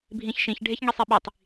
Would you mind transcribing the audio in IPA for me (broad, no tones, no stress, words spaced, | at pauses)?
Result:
bʱĩçʃĩç ɖʱeçŋisˤeɓitˤ